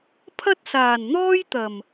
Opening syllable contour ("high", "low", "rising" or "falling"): high